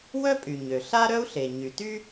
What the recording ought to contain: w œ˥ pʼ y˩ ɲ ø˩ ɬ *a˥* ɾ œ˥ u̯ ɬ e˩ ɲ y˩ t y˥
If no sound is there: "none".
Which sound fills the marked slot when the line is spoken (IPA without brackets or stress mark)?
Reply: a˥